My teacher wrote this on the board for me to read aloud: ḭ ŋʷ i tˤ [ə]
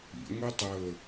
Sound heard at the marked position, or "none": ə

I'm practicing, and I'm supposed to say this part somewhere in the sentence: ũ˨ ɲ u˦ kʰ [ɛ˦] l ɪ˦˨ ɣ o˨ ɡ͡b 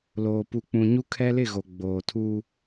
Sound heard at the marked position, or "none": ɛ˦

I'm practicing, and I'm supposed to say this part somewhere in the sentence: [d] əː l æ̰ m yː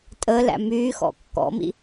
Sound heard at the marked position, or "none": tʼ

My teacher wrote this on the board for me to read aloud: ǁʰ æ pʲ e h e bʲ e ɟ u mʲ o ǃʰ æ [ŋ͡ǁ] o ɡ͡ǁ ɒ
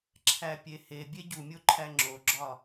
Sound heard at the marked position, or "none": ŋ͡ǁ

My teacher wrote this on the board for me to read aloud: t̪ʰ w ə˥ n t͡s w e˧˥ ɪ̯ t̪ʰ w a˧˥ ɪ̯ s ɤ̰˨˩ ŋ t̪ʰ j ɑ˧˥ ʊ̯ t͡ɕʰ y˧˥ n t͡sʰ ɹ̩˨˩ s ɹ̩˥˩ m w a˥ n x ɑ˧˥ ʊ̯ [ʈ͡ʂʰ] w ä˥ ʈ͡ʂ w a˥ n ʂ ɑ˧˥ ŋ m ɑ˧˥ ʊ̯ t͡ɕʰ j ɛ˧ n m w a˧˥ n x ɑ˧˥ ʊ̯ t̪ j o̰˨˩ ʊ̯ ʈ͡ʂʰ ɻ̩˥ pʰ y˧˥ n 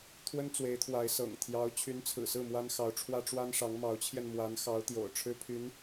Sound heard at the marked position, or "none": ʈ͡ʂʰ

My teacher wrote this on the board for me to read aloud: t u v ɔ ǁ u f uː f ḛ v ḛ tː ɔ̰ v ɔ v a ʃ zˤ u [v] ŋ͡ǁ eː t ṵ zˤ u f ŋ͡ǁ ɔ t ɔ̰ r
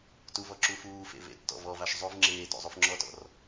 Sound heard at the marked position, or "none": v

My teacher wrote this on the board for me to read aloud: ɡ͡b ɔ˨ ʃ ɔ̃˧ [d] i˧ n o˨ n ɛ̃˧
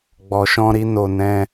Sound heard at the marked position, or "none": ɾ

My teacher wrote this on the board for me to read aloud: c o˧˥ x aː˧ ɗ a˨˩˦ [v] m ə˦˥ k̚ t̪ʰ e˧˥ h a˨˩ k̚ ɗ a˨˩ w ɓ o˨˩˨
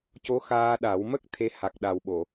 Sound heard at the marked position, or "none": w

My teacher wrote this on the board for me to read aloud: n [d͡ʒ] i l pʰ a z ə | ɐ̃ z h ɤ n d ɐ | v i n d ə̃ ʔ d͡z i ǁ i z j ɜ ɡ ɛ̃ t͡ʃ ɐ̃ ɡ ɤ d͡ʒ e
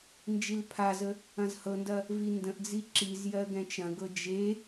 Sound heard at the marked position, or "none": d͡ʒ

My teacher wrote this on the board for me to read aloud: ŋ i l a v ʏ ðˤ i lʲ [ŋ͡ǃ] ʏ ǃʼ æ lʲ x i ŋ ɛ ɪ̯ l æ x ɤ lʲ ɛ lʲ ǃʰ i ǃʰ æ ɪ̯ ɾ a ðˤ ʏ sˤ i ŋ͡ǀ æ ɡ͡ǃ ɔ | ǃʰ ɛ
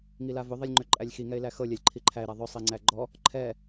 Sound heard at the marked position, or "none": ŋ͡ǃ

